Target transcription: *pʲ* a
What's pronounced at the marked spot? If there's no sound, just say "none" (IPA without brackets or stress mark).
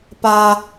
p